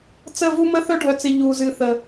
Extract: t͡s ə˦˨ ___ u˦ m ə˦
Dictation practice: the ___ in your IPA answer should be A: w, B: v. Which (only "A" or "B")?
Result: B